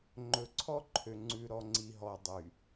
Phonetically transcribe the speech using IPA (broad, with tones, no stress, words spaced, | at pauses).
ŋ͡ǃɵ˨ǀʰɔ˦ǃʰø˨ ŋ͡ǀʉ˨ ɾɔ˨ŋ͡ǀi˨ɦɔ˨ dˤy˨